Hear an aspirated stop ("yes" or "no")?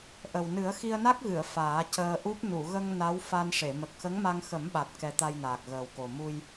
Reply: no